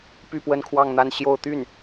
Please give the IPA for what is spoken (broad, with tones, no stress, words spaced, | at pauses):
py˥˧pwə˥˧nkʰwɑ˥˧ŋn̪a˥˧n ɕjo˥˧ʊ̯ t̪y˥˩n